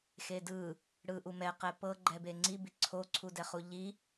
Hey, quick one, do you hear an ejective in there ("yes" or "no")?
no